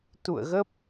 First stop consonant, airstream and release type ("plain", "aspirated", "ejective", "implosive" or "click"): plain